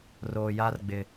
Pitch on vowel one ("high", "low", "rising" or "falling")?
low